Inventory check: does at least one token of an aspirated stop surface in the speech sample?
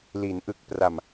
no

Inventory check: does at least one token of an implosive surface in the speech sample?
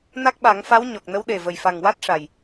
yes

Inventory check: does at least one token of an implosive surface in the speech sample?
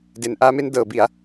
no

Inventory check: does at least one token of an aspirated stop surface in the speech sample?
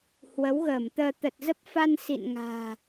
no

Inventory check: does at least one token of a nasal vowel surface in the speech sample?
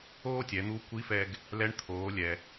no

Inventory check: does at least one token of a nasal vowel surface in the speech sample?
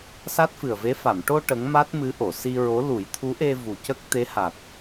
no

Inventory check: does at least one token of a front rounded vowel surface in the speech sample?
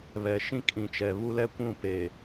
no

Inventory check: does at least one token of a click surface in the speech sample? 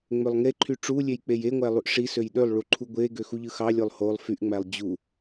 yes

